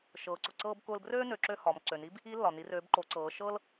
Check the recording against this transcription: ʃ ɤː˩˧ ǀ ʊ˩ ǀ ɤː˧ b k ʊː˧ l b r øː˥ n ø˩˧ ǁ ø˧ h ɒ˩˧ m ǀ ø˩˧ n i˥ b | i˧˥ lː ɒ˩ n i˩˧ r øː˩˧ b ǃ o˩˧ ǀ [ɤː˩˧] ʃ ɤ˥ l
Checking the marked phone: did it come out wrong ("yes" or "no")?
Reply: no